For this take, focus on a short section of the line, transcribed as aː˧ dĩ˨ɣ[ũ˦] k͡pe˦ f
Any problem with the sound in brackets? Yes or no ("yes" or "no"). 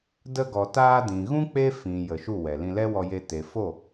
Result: no